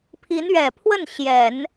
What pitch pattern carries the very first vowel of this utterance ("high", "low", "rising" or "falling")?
rising